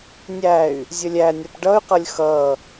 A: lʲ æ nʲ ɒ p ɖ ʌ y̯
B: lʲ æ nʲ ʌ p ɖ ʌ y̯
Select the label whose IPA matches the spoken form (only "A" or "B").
A